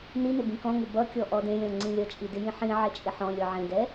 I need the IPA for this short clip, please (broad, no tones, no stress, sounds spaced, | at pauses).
n i n ɪ b ĩ k ɔ̃ ŋ ɪ b ʌ kʲ ɔ ʔ ɔ d ẽ lʲ ɔ̃ ŋ͡ǀ ĩ lʲ ʌ t͡ʃʼ i d ɪ j ĩ ħ ĩ ʕ ɛ t͡ʃʼ ɪ ħ ɔ̃ lʲ ɔ ʕ ẽ d ɛ